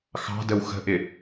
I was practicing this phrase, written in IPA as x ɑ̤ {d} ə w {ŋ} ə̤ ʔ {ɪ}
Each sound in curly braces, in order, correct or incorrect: correct, incorrect: x, correct

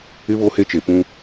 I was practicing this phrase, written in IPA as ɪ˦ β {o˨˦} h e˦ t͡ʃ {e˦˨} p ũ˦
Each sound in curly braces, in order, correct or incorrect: incorrect: o˦, incorrect: e˨

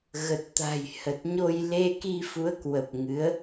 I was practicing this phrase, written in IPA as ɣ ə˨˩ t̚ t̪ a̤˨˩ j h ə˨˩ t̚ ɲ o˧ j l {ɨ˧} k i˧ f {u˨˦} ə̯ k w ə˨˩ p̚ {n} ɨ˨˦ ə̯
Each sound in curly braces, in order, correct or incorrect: incorrect: e˧, correct, incorrect: ŋ

